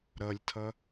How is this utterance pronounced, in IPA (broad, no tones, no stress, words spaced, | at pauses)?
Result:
ɾʌlʲtʰʌ